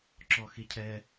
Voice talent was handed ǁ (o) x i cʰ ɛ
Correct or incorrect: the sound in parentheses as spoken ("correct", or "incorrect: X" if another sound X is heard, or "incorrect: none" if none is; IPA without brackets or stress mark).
incorrect: ɔ